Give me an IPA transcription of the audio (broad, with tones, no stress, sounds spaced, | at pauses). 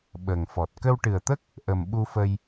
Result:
ɓ ə˨˩ ŋ f ɔ˨˩ t̚ k ə˧ w ʈ ɨ˨˩ ə̯ t̪ ə˦˥ k̚ | ʔ ə˨˩ m ɓ u˧ f ə˧ j